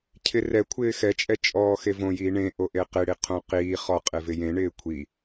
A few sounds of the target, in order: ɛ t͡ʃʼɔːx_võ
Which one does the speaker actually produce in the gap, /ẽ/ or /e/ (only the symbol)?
e